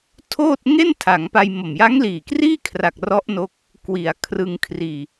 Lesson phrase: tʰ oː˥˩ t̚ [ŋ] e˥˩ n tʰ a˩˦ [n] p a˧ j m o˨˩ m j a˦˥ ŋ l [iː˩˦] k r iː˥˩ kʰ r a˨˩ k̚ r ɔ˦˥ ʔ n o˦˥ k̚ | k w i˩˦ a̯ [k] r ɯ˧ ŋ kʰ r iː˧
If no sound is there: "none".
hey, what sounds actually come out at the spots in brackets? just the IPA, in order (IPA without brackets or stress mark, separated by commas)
ŋ, ŋ, iː˨˩, kʰ